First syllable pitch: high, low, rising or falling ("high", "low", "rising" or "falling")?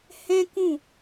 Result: high